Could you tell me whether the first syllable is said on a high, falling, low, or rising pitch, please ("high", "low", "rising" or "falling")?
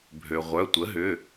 low